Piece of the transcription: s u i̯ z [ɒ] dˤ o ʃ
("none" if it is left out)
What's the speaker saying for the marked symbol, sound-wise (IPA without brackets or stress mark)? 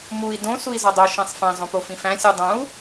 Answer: ɒ